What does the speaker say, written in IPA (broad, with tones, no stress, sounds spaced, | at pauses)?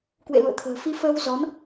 k w ḛ˧˨ l ṵ˧˨ ə̯ t̪ʰ ə̤ː˨˩ f i˧ f əː˧ w z ɔ˨˦ n